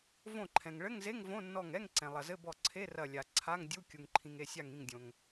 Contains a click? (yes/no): yes